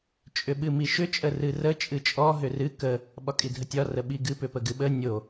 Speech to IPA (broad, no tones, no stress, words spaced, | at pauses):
t͡ʃʼʏɓɨmiʃʏ t͡ʃʼərɨrə t͡ʃʼɨt͡ʃʼɔ ɦʏrɨ kə | ɓɒkʼidʱətʲɒ rəɓiɡɨ pʏpəɡɨɓə nʲo